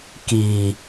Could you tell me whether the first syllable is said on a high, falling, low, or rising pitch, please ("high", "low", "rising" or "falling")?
low